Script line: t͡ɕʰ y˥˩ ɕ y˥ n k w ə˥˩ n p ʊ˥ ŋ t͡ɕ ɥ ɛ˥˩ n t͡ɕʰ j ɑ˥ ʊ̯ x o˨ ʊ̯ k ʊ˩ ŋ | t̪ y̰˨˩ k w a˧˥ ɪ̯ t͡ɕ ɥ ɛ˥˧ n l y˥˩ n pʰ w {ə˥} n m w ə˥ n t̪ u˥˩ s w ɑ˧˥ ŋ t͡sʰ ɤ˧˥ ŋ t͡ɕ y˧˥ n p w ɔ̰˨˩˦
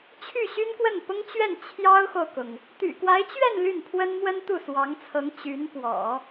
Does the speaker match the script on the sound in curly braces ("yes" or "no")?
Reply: yes